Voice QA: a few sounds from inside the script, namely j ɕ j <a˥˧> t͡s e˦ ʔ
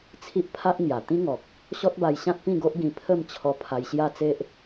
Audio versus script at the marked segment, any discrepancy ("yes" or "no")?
no